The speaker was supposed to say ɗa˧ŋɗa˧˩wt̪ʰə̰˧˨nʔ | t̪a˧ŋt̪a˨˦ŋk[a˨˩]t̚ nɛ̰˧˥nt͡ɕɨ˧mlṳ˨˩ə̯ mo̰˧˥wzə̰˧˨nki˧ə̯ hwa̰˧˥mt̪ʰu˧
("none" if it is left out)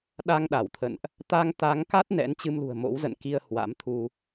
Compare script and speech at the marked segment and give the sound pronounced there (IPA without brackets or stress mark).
a˦˥